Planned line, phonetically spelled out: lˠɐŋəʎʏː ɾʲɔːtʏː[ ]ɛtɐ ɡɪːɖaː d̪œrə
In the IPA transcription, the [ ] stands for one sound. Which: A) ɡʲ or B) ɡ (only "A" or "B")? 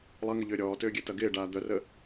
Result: A